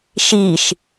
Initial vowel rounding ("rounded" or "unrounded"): unrounded